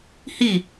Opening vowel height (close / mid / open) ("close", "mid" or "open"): close